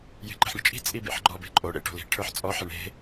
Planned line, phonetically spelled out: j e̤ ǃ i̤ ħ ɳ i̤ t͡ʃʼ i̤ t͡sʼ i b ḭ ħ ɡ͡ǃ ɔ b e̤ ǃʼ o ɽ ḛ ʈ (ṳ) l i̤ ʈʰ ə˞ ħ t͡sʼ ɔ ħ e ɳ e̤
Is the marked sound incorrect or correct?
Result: incorrect